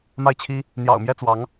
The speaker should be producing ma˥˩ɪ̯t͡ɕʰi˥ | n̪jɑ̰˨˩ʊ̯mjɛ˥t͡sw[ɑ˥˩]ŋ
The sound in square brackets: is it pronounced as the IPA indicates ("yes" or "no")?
no